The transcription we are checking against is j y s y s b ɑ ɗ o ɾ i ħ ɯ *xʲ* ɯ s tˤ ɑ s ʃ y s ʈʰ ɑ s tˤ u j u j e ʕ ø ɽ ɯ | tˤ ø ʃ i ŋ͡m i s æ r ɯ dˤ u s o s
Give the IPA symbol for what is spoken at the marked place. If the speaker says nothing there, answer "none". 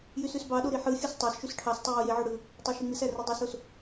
xʲ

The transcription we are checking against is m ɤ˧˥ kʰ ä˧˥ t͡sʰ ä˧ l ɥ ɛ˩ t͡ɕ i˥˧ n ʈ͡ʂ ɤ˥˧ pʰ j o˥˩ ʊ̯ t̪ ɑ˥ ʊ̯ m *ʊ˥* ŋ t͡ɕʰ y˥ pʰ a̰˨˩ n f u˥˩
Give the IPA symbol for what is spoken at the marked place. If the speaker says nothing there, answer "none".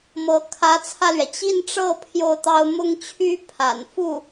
ʊ˥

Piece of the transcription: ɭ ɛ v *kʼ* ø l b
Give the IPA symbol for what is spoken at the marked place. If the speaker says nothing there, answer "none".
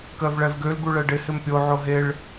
ɡ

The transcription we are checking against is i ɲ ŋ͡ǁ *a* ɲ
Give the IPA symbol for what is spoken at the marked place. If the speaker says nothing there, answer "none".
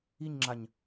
a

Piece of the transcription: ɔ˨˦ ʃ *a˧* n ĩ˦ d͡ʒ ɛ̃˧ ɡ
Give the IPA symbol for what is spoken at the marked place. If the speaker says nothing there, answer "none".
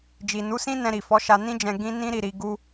a˧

